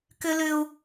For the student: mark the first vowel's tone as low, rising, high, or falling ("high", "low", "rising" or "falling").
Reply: high